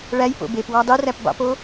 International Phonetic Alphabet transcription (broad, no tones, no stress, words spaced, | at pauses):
ɭæj po̰bepwɑ dˤeræp bɑ̰po